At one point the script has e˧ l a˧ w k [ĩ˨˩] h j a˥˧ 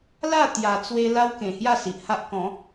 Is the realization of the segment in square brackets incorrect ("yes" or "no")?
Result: yes